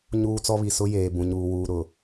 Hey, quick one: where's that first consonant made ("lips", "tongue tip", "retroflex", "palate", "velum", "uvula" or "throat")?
palate